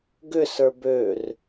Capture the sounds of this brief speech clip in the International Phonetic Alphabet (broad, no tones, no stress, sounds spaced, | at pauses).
ɡ ʏ s ə˞ b ø r